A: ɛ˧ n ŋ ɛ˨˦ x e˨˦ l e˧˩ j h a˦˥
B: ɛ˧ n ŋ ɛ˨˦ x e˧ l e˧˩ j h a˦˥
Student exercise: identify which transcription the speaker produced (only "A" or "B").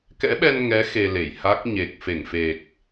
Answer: B